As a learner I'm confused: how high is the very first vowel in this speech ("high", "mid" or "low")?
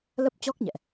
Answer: mid